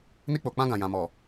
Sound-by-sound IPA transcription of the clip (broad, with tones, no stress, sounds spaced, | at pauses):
n i˧ k͡p o˨ k͡p ã˧ ɡ ã˨ j ã˨ m ɔ˨